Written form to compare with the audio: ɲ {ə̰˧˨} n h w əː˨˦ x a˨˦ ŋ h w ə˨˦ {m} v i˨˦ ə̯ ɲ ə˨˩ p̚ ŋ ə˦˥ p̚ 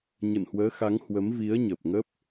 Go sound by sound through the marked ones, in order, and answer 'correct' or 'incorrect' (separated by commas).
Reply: correct, correct